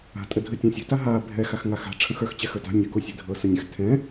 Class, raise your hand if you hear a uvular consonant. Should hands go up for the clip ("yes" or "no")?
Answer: no